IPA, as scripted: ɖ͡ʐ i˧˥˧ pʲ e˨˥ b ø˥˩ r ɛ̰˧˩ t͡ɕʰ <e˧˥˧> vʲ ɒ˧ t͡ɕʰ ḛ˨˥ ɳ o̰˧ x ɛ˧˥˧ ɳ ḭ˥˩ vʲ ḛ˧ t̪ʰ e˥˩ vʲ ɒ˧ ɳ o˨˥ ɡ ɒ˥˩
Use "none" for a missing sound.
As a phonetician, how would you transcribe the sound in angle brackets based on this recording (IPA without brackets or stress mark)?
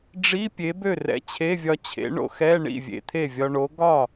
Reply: e˧˥˧